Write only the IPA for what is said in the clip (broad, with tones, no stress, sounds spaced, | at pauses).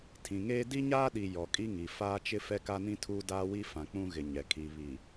tʰ ĩ˨ ŋ eː˦ d i˦ ɲ aː˦ ɗ i˨ j ɔ˨ kʼ i˦ ŋ i˨ f aː˦ t͡ʃ ɪ˦ f ɛ˦ k a˦ n ĩ˦ tʰ uː˦ d aː˦ w i˦ f ã˨ k͡p ũ˦ ɣ ɪ˨ ɲ ɛ˨ kʰ i˨ β i˨